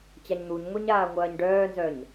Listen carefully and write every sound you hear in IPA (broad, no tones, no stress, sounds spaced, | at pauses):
t͡ɕ a ɲ n̪ u ɲ ŋʷ i ɲ aː ŋʷ ɐː ɲ ɖ œː n z œ ɲ